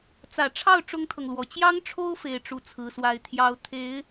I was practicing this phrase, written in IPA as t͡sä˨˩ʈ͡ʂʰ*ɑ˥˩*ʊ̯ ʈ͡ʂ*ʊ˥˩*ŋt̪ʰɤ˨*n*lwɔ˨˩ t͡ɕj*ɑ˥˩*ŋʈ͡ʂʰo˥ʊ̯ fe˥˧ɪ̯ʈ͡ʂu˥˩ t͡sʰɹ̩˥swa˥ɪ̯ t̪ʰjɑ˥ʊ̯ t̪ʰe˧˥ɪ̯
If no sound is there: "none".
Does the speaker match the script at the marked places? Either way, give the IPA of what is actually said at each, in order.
ɑ˥˩, ʊ˥, ŋ, ɑ˥

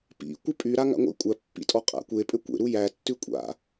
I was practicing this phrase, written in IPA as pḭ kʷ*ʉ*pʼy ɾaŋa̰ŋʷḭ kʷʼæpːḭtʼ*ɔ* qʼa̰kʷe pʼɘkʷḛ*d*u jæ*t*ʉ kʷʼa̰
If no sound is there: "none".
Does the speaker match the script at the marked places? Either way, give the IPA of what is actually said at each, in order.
ɘ, ɔ, ɾ, tː

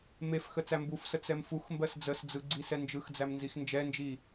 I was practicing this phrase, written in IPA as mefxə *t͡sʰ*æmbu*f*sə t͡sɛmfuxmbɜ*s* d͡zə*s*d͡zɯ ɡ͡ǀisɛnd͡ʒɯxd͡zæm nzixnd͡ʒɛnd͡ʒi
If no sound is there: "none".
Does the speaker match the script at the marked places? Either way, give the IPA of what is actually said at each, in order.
t͡s, f, s, s

